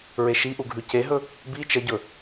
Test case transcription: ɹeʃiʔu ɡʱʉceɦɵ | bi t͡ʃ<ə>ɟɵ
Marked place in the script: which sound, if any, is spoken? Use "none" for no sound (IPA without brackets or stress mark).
ə